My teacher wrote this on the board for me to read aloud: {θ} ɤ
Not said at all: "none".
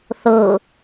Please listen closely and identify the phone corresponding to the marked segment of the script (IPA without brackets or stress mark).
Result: θ